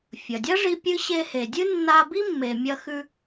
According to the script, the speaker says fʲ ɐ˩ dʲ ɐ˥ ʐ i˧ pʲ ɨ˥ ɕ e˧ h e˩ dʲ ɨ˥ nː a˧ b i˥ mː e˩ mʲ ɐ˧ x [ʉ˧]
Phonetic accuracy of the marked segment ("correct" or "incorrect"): correct